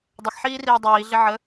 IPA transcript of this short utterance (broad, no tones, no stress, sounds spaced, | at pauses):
dˤ ə x ħ iː r iː dˤ iː ɮ ɪ ʕ ə